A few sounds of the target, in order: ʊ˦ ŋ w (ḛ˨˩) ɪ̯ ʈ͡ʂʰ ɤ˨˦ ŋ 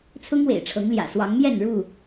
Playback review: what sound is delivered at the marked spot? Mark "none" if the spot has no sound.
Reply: ḛ˨˩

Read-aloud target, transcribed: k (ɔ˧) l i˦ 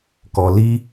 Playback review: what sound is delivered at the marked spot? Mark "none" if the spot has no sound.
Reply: ɔ˧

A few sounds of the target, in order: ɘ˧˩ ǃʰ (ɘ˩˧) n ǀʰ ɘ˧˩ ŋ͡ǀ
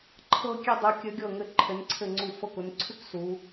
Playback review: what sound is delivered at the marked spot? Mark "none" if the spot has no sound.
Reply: ɘ˩˧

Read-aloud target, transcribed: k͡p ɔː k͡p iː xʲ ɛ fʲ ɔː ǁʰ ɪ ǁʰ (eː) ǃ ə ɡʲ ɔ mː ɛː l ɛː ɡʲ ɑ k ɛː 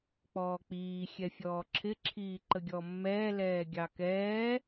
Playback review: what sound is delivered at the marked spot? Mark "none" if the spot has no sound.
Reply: iː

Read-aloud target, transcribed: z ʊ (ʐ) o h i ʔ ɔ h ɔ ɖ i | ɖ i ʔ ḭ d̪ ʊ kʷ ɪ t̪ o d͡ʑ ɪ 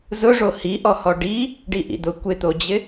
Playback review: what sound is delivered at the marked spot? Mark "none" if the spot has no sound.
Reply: ʐ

